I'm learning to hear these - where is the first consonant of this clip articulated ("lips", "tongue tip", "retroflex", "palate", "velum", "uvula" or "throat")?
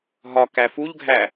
throat